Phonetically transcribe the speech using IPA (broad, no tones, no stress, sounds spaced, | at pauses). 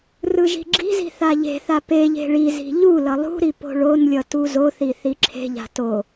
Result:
r ɯ ʒ i̤ ɡ͡ǁ i̤ z i̤ θ a ʎ e̤ θ a p e ʎ e̤ ɭ i z i̤ ʎ u l ʌ lˠ ṳ ɾ i p o̤ ɭ o n lʲ ʌ t u z o θ i θ i ǁʰ e̤ ʎ a̤ t o